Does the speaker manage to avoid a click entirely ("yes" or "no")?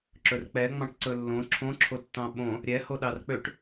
no